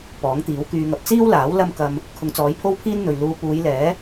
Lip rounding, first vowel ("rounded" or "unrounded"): rounded